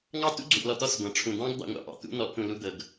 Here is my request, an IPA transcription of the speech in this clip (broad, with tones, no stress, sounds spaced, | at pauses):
ŋ ɑ˦ t ṵ˦ ɡ͡ǀ u˨ ʔ l ɔ˨ t̪ ɔ˦˨ s ɡʷ ɑ̃˨ ʈ͡ʂʰ ũ˨ d̪ ɑ̃˦ ɡ d̪ ɑ̰˦ ŋʷ ɑ̰˨ ʔ ɑ̰˨ t̪ ṵ˦ n̪ ɔ˨˦ ʔ t̪ ũ˨ l u˦ d̪ ɤ˨ ɡ